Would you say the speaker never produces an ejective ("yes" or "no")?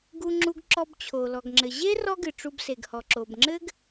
yes